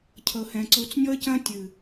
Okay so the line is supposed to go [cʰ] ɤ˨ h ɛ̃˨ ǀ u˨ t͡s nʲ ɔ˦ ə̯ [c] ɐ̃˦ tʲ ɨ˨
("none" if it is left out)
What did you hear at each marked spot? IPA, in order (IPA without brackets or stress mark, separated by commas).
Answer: cʰ, c